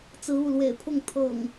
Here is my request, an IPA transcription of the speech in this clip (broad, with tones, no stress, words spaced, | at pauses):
t͡sɹ̩˨˦u˥˨lwḛ˨˩ɪ̯pʰʊ˥˨ŋ t̪ʰɤ̰˨˩ŋ